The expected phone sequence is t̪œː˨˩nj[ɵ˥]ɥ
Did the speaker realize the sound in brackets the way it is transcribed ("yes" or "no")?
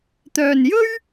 yes